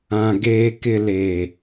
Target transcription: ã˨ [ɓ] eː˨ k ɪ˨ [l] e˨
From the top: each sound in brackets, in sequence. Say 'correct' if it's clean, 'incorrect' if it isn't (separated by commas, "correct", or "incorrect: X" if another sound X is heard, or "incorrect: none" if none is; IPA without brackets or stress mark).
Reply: incorrect: ɡ, correct